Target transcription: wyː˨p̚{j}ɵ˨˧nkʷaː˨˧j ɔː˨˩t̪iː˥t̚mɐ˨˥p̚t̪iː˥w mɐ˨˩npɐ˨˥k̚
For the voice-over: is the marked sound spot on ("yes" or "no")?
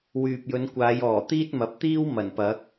yes